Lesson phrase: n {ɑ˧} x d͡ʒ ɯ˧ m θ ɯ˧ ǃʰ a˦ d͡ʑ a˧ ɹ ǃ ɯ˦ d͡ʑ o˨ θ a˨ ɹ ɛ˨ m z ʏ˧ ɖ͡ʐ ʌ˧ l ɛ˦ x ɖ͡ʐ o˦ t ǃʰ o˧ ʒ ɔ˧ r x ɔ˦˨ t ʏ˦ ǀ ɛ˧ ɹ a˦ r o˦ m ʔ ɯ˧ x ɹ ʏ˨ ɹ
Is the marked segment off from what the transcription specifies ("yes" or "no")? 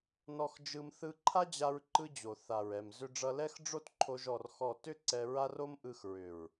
yes